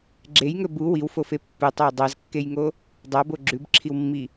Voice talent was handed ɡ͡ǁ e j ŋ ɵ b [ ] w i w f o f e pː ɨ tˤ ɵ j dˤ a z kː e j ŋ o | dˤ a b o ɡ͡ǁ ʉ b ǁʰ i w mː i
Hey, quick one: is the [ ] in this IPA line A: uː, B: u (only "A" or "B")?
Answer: B